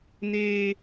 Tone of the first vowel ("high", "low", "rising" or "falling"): high